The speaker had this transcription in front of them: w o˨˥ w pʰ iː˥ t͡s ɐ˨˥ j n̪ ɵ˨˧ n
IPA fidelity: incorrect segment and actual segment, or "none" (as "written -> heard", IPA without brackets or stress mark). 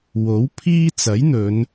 none